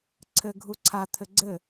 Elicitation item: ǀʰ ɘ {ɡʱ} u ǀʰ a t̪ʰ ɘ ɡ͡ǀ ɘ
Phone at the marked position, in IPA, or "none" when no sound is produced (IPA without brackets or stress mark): ɡʱ